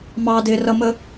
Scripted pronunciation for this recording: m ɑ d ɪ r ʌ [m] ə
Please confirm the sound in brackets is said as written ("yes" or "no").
yes